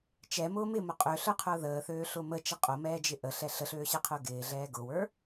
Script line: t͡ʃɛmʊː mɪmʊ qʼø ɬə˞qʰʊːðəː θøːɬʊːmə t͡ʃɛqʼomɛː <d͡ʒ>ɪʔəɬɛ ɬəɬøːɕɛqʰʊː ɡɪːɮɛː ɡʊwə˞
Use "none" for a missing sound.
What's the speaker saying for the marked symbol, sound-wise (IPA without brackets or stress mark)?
d͡ʒ